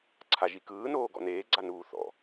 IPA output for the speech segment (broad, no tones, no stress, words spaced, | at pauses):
ǀʰaʒikɯːnoː ɡɔ̰neːɡ͡ǀa nuːθɔ̰